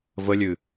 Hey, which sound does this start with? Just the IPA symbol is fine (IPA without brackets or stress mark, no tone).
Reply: v